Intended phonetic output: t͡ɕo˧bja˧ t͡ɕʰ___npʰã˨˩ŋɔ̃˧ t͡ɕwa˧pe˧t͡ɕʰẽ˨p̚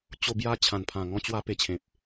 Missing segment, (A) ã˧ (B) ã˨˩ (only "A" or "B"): B